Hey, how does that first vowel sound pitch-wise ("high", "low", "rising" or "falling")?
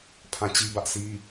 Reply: falling